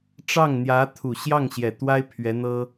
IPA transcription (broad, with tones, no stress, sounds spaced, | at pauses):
ʈ͡ʂ ɑ˥˩ ŋ n̪ j ä˧˥ t̪ʰ u˨˩ ɕ j ɑ˥˩ ŋ ɕ j ɛ˨˩ t̪ w a˥ ɪ̯ pʰ ɥ ɛ˧˥ n̪ ɤ˥